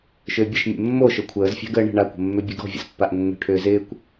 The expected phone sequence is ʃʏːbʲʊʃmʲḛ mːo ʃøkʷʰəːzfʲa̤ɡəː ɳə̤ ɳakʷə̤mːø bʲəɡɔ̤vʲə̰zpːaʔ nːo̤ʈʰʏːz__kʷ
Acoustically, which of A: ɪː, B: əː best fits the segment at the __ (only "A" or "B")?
A